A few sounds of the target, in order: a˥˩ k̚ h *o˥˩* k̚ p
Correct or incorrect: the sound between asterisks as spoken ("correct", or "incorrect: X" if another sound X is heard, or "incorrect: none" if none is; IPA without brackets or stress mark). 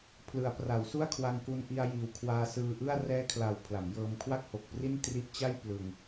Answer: incorrect: o˨˩